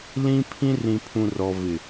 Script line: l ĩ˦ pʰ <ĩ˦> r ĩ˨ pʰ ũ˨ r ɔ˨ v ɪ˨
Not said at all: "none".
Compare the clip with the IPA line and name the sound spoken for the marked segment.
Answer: ĩ˦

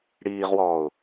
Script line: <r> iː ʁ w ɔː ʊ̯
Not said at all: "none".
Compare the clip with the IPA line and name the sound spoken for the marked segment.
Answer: ɽ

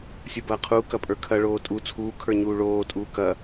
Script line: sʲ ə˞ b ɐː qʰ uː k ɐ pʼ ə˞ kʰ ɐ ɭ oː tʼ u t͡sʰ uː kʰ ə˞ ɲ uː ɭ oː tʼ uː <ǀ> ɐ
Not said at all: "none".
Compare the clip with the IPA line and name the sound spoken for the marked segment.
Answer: k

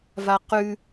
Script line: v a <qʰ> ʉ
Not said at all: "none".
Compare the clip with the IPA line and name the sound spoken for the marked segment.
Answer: q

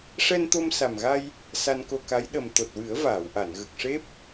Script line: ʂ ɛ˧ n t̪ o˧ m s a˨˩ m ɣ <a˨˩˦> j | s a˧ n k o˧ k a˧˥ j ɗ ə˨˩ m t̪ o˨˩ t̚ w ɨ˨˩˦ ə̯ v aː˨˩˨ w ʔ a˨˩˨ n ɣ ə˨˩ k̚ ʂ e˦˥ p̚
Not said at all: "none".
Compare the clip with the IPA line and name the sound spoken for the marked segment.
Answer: a˧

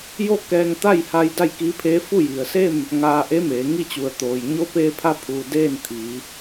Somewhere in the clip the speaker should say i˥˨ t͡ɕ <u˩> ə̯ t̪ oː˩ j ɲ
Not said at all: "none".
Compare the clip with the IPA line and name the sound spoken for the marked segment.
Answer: u˩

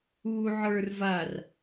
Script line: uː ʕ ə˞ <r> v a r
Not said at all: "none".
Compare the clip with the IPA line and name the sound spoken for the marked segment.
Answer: r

